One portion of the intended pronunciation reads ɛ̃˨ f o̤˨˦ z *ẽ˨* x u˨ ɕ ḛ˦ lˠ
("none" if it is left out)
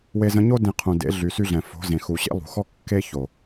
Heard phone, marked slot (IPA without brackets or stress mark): ẽ˨